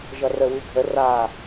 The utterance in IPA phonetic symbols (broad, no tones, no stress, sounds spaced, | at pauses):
ʒ ʌ r ə w ʉ ɡʱ ə r a